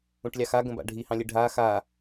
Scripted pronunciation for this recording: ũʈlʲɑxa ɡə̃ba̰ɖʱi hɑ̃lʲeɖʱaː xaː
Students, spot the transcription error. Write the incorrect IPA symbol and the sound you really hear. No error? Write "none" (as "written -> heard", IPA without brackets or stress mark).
none